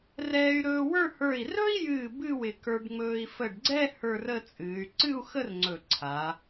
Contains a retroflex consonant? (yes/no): yes